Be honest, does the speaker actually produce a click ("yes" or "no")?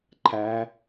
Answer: yes